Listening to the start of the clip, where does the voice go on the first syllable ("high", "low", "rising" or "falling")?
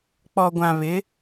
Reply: low